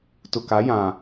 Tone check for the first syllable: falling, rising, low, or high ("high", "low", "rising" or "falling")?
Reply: low